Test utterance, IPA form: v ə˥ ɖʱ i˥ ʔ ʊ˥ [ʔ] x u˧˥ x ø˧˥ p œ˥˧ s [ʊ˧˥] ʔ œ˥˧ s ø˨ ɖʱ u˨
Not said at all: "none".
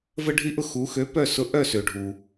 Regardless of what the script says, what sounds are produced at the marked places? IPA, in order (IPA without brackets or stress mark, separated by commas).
none, ʊ˧˥